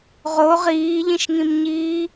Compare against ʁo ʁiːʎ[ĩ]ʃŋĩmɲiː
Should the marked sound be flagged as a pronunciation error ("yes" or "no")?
no